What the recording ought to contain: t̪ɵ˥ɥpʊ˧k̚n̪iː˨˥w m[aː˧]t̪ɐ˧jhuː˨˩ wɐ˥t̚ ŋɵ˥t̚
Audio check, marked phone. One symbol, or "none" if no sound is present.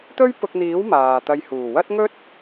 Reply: aː˨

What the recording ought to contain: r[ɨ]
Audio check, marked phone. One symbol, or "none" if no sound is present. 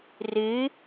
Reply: ɨ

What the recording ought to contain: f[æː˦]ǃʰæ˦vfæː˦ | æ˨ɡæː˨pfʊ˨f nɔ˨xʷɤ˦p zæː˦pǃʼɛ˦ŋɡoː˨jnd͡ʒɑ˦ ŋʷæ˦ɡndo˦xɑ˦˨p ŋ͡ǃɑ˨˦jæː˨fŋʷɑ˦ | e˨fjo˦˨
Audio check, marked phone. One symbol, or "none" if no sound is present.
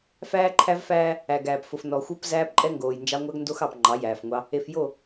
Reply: æː˦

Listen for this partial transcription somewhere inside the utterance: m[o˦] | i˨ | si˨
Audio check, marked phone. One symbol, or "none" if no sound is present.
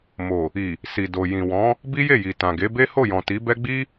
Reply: o˨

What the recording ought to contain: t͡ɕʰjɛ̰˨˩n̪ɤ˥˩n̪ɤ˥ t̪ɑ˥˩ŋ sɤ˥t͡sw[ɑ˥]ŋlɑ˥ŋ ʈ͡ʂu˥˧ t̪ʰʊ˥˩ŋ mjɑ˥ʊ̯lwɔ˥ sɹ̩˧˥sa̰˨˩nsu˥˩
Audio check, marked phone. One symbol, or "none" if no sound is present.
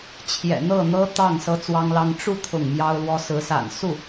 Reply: ɑ˥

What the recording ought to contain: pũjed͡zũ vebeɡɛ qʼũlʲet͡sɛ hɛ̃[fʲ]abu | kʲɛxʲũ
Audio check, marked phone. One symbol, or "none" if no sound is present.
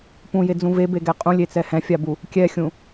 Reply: fʲ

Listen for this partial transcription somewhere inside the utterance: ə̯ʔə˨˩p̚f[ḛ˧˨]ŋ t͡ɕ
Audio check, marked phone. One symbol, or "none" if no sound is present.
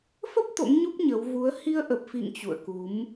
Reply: ḭ˧˨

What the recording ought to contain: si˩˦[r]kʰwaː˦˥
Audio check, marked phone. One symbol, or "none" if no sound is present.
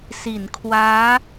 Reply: n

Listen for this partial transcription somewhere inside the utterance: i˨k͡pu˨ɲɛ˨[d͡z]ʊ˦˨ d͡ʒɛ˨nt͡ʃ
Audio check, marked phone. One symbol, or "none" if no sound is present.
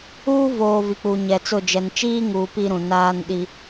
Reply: t͡s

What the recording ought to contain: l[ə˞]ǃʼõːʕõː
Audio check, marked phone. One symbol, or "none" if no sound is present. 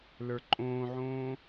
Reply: ə˞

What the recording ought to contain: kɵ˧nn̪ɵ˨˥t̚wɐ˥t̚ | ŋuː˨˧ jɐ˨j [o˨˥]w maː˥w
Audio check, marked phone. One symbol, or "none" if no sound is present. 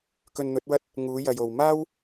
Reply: o˨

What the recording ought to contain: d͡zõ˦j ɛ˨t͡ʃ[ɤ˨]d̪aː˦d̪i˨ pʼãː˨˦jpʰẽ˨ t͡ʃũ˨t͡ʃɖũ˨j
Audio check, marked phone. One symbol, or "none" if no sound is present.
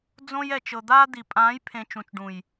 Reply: ɤ˨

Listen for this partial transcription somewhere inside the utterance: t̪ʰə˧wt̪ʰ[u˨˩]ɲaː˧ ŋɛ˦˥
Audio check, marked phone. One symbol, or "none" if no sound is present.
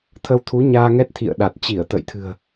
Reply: u˨˦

